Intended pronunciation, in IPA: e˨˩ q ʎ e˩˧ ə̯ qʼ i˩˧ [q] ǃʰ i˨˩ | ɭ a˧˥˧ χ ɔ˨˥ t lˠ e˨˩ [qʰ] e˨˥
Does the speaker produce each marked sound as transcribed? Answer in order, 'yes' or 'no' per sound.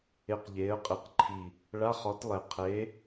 yes, yes

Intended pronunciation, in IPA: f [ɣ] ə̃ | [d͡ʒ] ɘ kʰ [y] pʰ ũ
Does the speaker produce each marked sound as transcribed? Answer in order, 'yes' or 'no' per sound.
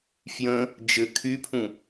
no, yes, yes

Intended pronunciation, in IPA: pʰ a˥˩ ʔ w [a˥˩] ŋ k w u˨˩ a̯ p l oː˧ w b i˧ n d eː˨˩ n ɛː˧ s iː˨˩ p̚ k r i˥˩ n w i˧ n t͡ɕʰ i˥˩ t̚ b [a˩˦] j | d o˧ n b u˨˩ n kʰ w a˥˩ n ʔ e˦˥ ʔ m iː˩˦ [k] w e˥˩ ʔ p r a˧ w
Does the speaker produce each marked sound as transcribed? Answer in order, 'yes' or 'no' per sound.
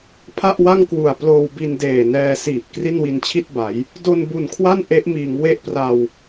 yes, yes, no

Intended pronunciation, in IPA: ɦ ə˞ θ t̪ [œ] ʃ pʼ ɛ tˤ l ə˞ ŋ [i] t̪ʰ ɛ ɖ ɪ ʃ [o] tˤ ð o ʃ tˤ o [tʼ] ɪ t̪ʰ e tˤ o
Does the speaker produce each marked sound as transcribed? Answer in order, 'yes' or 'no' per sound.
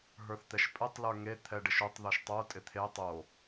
no, no, yes, yes

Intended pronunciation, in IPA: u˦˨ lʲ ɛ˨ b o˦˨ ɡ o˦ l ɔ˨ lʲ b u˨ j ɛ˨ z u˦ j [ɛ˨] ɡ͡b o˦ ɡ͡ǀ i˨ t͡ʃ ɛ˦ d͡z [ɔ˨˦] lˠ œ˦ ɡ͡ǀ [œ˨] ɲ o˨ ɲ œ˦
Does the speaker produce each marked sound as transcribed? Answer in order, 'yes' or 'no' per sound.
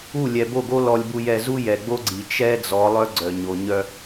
yes, yes, yes

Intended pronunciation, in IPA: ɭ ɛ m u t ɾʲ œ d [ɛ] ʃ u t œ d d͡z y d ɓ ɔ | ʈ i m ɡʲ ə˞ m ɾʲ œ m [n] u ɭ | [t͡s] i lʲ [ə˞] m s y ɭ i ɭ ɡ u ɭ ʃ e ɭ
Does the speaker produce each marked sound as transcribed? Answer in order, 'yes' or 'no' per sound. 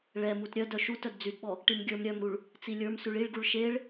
no, no, yes, yes

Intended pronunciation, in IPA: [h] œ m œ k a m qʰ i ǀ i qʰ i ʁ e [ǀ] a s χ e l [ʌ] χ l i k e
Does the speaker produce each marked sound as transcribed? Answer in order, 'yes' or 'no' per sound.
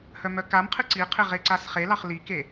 yes, yes, no

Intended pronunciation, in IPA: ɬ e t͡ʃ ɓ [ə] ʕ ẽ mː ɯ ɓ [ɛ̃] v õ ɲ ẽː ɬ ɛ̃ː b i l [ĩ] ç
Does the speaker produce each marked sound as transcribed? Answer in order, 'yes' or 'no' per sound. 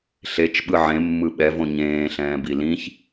no, no, yes

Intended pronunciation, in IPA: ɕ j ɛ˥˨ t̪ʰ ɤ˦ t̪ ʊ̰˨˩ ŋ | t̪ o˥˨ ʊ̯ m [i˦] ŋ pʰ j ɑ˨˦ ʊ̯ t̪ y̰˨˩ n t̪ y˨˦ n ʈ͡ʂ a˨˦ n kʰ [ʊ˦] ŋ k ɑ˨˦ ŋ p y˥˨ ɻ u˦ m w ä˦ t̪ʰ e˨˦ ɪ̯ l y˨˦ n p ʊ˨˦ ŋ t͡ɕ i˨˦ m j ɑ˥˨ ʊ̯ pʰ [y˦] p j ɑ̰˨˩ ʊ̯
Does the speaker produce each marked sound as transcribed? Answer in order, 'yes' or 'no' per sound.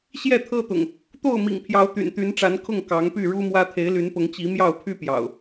no, no, yes

